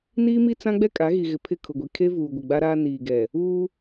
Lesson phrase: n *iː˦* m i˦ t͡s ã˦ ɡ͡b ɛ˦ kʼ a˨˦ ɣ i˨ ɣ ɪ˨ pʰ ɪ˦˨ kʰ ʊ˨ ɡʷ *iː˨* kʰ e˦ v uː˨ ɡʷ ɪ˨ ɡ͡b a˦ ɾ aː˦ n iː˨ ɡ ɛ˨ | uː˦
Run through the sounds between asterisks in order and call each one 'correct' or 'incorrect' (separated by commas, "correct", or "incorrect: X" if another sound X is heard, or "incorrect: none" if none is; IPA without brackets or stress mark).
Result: correct, incorrect: i˨